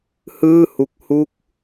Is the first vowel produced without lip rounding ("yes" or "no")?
yes